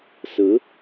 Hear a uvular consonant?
no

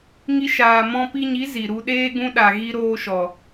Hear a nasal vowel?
yes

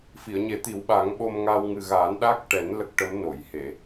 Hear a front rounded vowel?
no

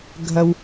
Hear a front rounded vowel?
no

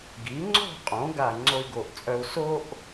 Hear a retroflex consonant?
no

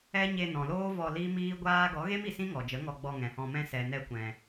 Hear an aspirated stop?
no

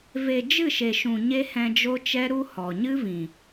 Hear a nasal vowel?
yes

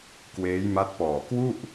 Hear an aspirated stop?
no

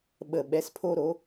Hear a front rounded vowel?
no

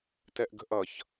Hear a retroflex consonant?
no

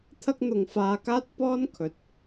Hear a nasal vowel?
no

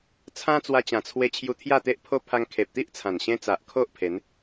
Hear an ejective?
no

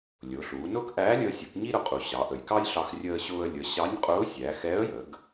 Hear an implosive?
no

